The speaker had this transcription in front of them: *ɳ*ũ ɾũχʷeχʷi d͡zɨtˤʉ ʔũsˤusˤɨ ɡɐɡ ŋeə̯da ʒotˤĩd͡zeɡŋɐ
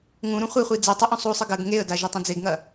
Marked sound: incorrect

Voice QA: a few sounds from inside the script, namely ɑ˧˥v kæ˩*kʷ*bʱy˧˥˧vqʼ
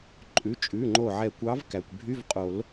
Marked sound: correct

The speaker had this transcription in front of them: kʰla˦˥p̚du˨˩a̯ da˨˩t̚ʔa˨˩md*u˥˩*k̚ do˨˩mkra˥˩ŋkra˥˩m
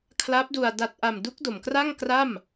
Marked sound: incorrect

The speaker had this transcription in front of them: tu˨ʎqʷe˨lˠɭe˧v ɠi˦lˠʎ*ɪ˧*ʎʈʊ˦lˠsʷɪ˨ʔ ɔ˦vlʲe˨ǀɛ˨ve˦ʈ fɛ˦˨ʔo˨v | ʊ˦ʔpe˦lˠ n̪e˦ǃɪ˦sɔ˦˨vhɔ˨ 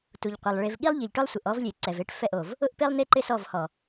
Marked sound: incorrect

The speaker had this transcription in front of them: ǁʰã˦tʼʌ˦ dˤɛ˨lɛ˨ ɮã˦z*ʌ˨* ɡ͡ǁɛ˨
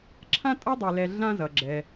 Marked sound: correct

